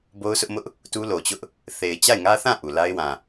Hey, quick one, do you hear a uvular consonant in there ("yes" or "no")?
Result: no